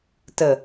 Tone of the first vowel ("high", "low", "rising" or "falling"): low